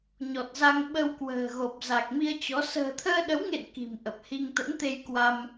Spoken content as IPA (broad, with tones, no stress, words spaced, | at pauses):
ɲɔ˨˩t̚za˧ŋ ɓə˧wkwə̤ː˨˩ɣo˨˩p̚ za˨˩k̚mi˧ə̯t͡ɕɔ˨˦ sə̤ː˨˩t̪ʰəː˧ɗə˨˦wŋḛ˧˨n ki̤˨˩mʔə˨˩p̚hi˧ŋ t̪ə̰˧˥nt̪e˧j kwa˧m